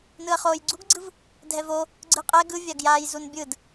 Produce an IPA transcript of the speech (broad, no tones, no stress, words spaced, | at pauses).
nɯɐ̯χoːjɡ͡ǀuɡɡ͡ǀɯv | dʱɛvo | ɡ͡ǀɯqʼɛ ɡɯvʲaɡjaːj zunbʲɯd